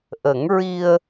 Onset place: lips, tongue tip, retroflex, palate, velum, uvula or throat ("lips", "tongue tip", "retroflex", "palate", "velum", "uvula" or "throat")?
throat